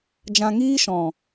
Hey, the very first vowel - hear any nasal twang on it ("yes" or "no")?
yes